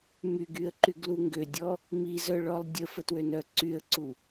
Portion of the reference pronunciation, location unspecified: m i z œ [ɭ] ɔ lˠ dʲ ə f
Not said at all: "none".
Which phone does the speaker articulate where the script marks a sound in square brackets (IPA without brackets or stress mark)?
ɭ